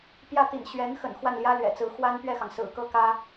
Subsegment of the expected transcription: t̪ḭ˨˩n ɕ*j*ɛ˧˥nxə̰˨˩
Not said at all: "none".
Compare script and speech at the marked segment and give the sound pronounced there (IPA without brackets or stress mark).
ɥ